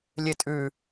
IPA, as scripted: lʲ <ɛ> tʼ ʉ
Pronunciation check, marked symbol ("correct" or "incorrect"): incorrect